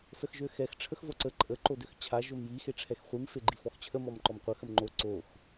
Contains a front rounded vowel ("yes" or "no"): yes